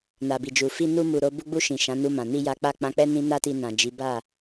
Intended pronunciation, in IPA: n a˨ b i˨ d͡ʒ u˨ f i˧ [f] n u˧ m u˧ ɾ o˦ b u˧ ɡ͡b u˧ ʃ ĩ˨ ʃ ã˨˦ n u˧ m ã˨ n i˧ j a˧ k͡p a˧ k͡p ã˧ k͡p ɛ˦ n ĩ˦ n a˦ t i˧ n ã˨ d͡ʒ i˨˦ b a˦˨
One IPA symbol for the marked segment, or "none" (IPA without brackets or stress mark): none